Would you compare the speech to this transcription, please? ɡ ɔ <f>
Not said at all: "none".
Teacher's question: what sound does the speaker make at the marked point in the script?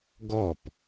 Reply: p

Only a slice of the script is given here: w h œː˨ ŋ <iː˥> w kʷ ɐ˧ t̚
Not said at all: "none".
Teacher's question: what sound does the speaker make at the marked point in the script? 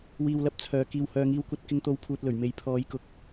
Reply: iː˧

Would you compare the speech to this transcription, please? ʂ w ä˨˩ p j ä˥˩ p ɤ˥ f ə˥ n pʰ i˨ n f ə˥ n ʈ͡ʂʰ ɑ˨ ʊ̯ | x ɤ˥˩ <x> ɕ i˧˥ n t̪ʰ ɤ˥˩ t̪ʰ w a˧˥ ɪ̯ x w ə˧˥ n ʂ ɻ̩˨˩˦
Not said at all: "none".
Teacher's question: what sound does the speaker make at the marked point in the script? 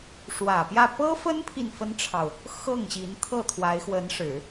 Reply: ŋ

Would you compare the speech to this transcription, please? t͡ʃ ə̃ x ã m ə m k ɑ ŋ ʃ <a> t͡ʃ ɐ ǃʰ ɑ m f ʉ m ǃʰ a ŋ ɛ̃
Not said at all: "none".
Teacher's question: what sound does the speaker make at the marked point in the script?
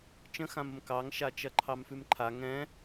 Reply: a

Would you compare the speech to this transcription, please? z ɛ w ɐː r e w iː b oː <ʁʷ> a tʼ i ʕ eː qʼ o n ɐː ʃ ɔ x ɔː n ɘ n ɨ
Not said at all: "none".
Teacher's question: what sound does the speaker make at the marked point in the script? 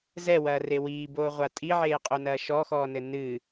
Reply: ʁʷ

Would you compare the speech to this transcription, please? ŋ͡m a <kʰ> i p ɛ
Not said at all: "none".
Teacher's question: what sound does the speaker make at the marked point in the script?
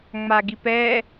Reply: ɡ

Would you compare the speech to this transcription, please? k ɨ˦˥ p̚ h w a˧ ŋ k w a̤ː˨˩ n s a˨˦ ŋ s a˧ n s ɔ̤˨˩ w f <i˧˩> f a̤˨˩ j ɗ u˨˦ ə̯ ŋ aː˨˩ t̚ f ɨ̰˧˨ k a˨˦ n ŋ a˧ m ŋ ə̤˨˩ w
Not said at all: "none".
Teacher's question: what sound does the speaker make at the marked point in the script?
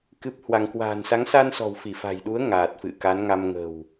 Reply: i˧˩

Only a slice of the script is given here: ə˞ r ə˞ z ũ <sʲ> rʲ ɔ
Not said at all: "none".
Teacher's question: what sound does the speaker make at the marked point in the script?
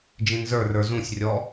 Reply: sʲ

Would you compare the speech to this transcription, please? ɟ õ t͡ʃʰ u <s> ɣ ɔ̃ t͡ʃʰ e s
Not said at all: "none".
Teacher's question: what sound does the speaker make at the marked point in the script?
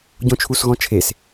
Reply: s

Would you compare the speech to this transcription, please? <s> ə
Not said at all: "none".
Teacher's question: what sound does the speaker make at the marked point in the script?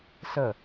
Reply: s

